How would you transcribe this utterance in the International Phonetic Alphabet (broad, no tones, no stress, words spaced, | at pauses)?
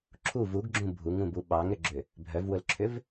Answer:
ǁʰu vuɡɡ͡ǁũ bʱuŋũbu ɓɑŋɾʏɡ͡ǁʏ | bʱœvwʊlǁʰʏv